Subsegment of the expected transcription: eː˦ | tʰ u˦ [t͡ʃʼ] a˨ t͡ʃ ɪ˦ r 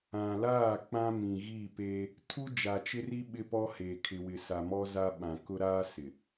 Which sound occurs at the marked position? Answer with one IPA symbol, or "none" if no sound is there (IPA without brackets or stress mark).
d͡ʒ